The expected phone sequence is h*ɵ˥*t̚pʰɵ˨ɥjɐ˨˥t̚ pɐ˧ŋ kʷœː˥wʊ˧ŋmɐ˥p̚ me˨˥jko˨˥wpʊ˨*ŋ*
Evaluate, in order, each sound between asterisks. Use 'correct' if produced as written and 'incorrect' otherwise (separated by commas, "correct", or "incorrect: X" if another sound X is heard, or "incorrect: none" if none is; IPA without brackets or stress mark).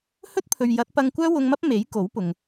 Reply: correct, correct